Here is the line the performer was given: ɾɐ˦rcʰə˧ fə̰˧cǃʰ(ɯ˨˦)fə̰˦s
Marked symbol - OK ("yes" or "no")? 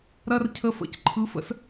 yes